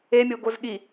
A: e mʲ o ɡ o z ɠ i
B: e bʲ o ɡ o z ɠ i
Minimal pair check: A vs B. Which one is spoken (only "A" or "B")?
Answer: A